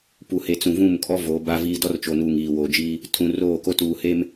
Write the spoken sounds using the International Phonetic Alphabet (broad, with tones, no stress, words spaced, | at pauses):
pu˨ he˨t͡sũ˨vũ˦˨mkʼɔ˦ voː˨˦ba˦viː˦ dɔ˦rt͡ʃo˨nuː˨ŋ iː˨woː˨d͡ʒiː˦ | tʰũ˨ roː˦˨ko˦tuː˨ he˦m